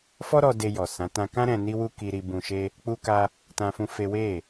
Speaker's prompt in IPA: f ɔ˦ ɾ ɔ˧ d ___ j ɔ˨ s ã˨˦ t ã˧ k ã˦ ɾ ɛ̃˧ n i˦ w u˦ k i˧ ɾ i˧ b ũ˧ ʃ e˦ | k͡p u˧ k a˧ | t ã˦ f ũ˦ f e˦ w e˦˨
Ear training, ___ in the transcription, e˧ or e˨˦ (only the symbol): e˧